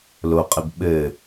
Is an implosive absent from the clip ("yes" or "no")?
no